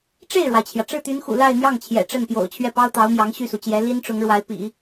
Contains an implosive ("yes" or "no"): no